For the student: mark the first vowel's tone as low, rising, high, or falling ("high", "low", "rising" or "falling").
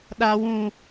low